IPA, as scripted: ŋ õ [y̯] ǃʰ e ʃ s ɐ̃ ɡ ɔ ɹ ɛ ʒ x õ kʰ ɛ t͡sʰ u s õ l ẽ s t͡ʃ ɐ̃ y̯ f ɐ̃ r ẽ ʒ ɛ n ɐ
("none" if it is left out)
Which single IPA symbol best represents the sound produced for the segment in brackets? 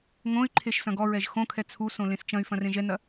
y̯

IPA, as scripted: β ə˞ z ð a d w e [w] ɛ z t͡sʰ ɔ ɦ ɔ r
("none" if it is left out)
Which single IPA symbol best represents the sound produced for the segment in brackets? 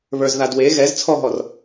ɣ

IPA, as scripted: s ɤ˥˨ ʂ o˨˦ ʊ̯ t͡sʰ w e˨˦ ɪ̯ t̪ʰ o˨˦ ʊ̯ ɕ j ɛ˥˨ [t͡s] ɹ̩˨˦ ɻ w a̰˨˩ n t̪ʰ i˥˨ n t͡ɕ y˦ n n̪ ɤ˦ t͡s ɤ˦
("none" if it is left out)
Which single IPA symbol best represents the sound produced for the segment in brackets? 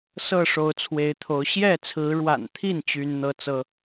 t͡sʰ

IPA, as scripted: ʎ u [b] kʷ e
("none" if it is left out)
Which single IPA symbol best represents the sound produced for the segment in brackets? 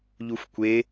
f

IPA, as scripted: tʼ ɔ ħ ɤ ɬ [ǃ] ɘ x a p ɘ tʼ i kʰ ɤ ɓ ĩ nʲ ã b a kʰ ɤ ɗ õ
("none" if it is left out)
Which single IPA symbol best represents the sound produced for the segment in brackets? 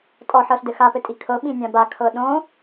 d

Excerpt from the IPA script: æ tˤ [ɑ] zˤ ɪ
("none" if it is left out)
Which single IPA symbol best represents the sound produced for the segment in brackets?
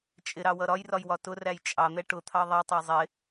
ɑ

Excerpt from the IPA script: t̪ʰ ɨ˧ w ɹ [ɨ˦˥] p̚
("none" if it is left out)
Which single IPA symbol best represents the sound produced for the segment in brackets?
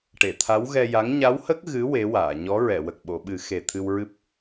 ɨ˦˥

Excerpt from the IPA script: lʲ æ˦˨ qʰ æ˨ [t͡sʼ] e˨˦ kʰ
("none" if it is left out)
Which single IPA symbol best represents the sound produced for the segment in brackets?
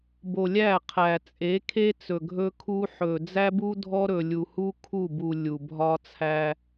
t͡sʼ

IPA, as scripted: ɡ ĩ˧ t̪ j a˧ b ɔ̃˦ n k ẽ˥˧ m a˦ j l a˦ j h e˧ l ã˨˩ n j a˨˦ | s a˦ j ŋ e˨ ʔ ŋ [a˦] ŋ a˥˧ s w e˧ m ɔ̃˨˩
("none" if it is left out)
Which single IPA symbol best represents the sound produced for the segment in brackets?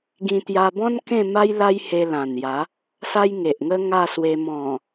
ə˦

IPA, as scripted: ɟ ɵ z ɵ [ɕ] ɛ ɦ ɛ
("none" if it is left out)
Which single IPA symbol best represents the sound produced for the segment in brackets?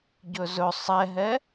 sˤ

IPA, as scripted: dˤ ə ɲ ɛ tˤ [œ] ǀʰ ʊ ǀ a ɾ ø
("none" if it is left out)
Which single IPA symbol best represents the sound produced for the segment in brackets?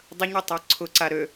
œ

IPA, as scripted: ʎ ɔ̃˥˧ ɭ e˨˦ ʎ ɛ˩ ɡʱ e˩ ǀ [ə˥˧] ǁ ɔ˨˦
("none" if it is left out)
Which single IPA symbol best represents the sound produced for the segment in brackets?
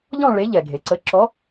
ə˨˦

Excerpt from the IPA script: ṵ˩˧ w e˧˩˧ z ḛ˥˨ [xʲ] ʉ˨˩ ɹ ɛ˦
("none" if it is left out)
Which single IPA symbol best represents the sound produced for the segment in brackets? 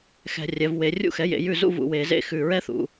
x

